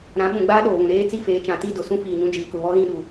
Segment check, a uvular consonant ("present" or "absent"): absent